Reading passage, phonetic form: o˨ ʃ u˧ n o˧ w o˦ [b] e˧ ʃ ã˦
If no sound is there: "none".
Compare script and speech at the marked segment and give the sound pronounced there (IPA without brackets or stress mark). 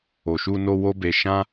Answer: b